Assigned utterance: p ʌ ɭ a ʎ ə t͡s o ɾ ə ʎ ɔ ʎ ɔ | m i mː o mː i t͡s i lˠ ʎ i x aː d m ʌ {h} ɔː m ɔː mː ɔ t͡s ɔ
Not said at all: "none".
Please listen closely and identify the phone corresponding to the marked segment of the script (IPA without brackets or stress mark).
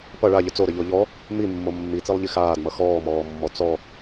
x